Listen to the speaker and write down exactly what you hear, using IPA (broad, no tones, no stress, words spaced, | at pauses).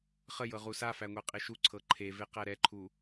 χə jɤʁusafæ ŋʷɛqʼeʃuǀʰɤ ǃʰeve qæɾɛǃʰu